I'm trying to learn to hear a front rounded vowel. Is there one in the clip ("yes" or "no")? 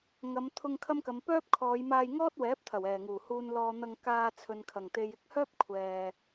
yes